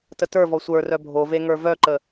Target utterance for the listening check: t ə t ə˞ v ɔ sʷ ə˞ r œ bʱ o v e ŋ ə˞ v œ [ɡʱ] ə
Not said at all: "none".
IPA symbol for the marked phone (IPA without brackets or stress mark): ǃ